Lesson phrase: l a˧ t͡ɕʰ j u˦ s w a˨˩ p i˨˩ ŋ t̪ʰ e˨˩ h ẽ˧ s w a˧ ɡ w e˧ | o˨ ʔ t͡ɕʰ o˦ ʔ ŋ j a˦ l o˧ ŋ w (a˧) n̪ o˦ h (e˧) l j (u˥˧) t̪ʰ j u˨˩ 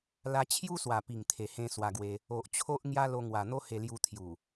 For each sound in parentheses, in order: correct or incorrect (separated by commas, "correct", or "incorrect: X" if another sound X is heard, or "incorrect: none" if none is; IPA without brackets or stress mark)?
incorrect: a˨˩, correct, incorrect: u˧